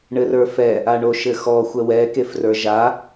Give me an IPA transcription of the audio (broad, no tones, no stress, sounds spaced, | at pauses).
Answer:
ɳ ɘ r ə˞ f ɛ | a ɳ o ʃ ɘ x ɔ xʷ ɛ w ɛ k e f r ə˞ ʒ a